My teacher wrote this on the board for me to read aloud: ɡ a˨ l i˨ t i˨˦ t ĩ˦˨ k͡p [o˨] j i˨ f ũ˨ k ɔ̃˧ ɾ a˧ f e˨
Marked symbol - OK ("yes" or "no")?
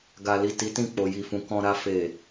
yes